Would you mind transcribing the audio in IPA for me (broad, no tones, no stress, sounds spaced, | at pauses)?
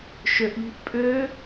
ʃ ø ʔ ʎ i̤ ʔ pʼ ø